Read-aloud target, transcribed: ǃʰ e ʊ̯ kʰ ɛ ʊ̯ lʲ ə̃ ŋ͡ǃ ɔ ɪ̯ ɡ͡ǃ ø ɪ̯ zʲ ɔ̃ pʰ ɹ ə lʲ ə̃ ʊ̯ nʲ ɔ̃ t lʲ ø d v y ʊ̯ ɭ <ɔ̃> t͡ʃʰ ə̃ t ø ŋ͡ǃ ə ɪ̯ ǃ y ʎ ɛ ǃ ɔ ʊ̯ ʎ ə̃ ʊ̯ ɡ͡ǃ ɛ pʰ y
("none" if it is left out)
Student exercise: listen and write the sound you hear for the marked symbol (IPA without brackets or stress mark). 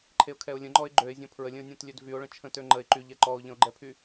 ə̃